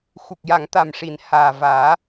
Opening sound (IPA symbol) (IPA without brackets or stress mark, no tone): x